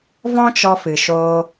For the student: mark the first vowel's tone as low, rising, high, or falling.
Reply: high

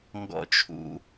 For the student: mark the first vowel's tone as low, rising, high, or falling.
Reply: high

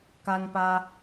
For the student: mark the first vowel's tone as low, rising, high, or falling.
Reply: high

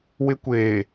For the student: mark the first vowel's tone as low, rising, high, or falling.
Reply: high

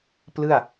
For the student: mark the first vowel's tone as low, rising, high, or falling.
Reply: falling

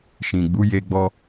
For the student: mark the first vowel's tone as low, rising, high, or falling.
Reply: low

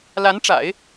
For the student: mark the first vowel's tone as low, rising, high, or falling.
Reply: rising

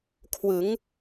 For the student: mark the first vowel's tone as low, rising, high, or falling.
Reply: rising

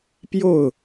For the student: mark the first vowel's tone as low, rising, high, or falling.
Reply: falling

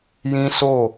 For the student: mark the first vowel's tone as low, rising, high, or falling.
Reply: high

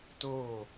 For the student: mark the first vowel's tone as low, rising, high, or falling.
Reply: falling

